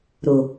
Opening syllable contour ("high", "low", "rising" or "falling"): low